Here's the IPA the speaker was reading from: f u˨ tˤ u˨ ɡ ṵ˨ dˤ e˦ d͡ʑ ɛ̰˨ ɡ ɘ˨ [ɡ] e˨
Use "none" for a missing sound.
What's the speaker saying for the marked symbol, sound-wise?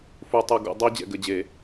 d͡ʑ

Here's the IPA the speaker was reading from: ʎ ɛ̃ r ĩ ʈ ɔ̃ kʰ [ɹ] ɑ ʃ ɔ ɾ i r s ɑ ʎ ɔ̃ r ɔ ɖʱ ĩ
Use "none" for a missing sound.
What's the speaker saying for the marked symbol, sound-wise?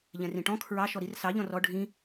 ɹ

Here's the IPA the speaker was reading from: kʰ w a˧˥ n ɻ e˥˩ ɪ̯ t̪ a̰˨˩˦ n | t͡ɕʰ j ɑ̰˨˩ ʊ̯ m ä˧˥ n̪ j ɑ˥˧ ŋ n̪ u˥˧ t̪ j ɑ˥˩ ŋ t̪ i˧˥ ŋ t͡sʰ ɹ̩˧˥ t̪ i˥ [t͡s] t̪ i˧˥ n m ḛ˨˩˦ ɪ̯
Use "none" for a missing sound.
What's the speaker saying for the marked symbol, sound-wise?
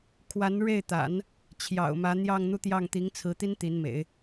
n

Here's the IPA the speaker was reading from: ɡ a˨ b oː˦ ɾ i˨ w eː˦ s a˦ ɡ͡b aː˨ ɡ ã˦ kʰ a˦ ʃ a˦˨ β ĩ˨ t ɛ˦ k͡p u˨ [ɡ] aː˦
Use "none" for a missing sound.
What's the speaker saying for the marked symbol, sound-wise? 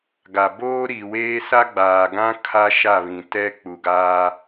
ɡ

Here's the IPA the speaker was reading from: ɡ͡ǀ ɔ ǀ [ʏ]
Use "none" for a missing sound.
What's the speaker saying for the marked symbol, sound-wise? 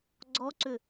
ʏ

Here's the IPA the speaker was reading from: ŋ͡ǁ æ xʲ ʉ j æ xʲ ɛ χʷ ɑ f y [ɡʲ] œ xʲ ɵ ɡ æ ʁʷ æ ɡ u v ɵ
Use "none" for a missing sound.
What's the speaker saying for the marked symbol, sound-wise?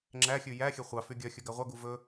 ɡʲ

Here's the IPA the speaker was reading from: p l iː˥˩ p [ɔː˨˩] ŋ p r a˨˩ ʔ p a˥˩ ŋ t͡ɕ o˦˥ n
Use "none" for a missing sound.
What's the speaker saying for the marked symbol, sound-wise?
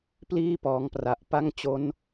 ɔː˩˦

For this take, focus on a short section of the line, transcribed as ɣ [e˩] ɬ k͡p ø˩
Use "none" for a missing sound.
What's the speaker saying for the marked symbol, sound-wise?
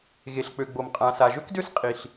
e˩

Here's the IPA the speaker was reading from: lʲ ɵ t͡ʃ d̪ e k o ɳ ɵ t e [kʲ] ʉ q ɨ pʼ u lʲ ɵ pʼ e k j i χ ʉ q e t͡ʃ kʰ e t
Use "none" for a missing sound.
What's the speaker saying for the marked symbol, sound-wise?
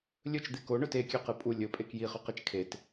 kʲ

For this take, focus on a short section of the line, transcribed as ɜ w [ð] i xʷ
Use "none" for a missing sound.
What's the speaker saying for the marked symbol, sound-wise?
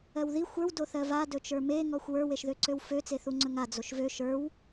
ð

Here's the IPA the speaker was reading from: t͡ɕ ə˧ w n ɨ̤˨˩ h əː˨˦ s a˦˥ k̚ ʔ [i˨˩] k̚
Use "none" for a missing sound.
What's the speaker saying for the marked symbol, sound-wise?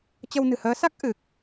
ɨ˨˩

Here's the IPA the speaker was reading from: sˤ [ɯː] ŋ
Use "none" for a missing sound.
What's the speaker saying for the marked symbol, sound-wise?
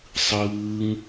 ɯː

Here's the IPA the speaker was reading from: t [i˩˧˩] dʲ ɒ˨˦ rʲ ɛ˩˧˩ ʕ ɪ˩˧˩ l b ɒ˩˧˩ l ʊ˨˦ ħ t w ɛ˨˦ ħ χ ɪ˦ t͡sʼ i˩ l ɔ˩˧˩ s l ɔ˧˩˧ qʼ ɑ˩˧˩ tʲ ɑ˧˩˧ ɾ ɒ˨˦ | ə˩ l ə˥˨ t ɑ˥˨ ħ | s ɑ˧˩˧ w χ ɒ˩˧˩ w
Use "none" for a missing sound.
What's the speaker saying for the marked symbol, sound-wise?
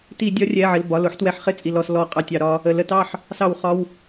i˧˩˧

